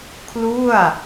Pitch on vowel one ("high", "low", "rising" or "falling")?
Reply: falling